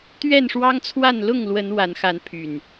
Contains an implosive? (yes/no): no